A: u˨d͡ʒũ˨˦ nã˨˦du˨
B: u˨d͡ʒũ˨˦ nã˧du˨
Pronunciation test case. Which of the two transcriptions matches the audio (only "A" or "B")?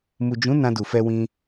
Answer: B